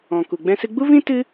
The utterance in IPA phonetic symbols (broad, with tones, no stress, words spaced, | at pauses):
ɔ̃˨ku˨ ɡ͡bɛ̃˧sɨ˧ɡ͡bu˦vĩ˦ tɨ˦